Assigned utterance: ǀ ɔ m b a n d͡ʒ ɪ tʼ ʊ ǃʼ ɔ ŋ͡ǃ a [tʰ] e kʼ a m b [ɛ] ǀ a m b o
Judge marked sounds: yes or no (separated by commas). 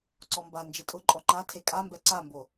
yes, yes